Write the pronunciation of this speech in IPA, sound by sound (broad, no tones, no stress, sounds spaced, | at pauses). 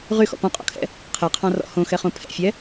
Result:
ʁ y x ɔ̰ p ɔ̃ qʼ ɔ̰ kʰ ɛ̰ | qʰ ɛ qʰ ɑ̃ r ɔ̰ h õ x ɛ χ õ pʰ ɛ̰ fʲ ɛ